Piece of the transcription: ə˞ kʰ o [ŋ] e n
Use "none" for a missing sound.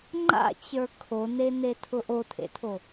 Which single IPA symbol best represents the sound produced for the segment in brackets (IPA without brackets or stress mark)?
n